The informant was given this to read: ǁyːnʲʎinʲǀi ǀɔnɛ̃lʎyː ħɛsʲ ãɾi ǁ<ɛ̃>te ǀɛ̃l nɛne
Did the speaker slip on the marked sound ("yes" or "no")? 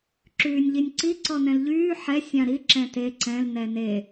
no